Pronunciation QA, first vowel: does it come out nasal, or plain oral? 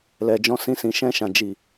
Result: oral